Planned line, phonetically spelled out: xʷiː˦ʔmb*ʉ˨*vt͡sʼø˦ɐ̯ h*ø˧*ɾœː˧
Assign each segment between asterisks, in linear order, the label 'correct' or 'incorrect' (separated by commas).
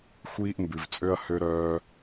correct, correct